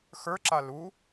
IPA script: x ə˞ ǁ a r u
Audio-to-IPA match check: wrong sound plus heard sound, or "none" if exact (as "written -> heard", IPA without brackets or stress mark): r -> l